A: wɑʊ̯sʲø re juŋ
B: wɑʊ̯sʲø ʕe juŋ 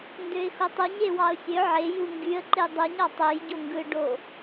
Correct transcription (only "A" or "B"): B